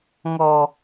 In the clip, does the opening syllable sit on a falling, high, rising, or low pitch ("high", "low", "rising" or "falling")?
low